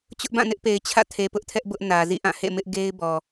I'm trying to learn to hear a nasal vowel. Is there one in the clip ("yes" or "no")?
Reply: yes